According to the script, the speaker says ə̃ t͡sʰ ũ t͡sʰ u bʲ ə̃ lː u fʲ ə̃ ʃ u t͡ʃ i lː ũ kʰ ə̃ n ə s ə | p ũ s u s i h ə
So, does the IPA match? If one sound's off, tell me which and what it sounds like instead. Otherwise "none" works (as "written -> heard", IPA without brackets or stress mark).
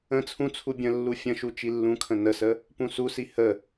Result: none